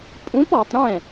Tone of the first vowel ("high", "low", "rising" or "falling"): rising